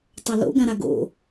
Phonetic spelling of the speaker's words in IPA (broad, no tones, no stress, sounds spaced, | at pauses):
tˤ ɐ l o̰ ɡ ã ɾ a ɡ o̰